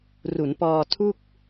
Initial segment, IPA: r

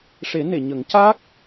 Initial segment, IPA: ʂ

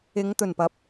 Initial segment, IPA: ɪ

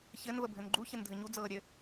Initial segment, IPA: ç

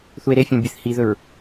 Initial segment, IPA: θ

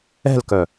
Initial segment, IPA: ɛ̤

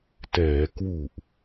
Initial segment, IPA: t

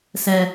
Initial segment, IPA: s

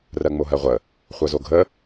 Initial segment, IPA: r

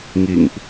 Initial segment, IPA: ŋ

